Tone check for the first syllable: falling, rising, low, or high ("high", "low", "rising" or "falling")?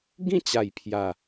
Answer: falling